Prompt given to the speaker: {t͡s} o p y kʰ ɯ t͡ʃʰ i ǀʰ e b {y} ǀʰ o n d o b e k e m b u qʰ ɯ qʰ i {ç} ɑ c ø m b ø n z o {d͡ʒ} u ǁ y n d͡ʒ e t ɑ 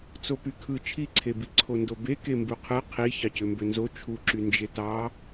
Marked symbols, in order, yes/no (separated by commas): yes, no, yes, no